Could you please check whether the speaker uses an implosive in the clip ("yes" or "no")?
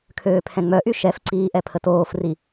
no